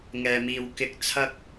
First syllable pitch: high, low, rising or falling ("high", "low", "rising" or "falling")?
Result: low